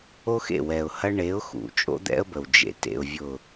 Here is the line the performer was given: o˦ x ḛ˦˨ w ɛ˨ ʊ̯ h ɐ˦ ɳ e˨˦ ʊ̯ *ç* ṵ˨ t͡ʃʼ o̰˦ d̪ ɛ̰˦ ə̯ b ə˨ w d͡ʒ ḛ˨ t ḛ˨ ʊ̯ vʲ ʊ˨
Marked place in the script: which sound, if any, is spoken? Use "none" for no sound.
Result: x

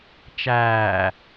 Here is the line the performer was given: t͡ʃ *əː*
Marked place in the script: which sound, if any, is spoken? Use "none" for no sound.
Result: æː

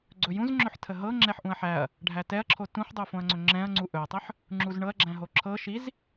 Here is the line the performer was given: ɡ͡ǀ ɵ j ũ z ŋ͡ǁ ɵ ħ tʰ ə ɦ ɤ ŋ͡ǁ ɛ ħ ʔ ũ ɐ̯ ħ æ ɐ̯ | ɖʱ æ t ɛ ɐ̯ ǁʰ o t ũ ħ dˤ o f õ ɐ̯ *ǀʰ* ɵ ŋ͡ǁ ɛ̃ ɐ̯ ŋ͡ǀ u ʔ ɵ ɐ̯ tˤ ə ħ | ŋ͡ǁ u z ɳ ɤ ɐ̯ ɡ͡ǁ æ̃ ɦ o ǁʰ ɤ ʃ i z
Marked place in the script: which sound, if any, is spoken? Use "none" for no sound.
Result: ŋ͡ǀ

